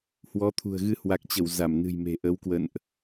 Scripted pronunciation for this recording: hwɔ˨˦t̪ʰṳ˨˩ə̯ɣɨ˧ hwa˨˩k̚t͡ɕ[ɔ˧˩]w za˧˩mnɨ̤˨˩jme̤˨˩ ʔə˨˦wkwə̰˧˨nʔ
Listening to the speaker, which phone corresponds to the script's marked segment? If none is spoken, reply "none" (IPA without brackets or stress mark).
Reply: ə˧˩